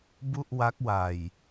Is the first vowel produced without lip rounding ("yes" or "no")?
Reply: no